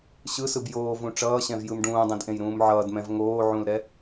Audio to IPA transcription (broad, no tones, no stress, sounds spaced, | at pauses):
ɕ ɯ s ɯ b j oː v ũ ʈ͡ʂ ʌː ɕ ɛ̃ v j ɯ m ɖ ũː dˤ ɛ̃ d ʔ ẽ j ɾ ũː m ʕ ʌː d m ɛ̃ v ŋ oː ʕ ũ l ɾ ɛ